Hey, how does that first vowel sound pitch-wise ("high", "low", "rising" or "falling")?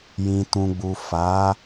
low